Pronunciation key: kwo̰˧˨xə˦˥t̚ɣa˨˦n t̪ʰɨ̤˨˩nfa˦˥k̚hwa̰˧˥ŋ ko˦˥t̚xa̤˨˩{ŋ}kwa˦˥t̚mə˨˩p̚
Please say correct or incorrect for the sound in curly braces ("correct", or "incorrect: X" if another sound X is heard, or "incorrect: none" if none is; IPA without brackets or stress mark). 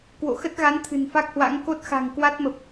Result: correct